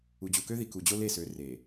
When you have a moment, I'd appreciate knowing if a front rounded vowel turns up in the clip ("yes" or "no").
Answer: yes